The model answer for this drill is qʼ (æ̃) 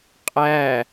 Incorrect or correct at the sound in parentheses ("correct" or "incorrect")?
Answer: incorrect